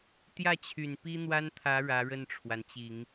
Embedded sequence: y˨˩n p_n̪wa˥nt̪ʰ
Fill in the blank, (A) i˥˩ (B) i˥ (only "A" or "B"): B